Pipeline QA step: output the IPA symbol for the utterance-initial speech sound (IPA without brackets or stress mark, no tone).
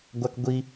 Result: ɡʷ